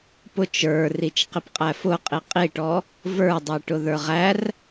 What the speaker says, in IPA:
pʊt͡ʃ ə˞rit͡ʃ qipqʼæfʊqʼi qʼiʈɔ | və˞dˤi ʈʊðə˞ʁær

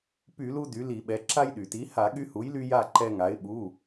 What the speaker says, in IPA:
py˧˩˧lu˧ dy˩˥li˧˩˧ɓɛ˩˥ ǁa˧jɗy˩ti˩˥ ha˧˩˧ɠy˧hu˩˥jly˧ ja˥˨ǃɛ˧ŋa˩˥ɪ̯ ɓu˩˧˩

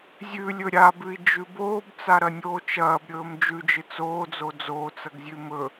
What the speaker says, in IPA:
zʲʉlʲɵ ɾʲabʉi̯d͡ʒʉ boːbt͡saɾɐnʲoː t͡ʃɐːbɾʲɵːm d͡ʒʉd͡ʒɨ t͡soːd͡zo d͡zoːt͡sɐɡzʲʉ mɵ

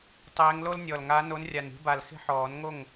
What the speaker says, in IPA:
tˤeː˨˦ŋ lo˦lnʲɔ˨˩lŋa˨˦ no˨˦nrʲa˨˩ni̤˨˦ba˨˩l xe̤˦ħɔː˨˩˦nŋo˥˩ŋ

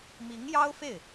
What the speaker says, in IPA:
mi˧˥ŋjɑ˥ʊ̯fe˥˩ɪ̯

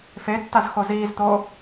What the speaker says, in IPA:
fetːazxo ziːzt̪o

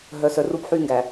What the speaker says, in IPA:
ɦœ˨sœ˨ru˦p ħyː˦ŋɡæ˨

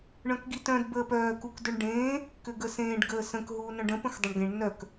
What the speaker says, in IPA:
ɳœ̃kɡitœ̃d bəːpœː kukdʏɳɖẽː | kʏɡəsẽːɖ ɡəːsə̃k ɦuːnœ̃ɖə̃ pə̃xdˤʏɳɡẽɳ nœk

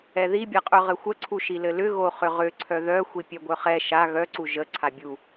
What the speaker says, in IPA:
ɛðibʲaqʼœ ʁɘxʷəǀʰu ʃilɘlʏ ɣoχʏʁʏ ǀʰœðœ xʷipʲœɡʷœχɛ ʃa ɣœǀu ʒə ǀʰabʲu

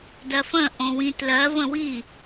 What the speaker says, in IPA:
dɜfə̃ ʔõwĩtlɜ və̃wi

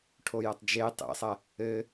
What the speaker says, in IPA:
ʈʰojɐtˤd͡ʒe tˤḛsˤɐ | ɘ

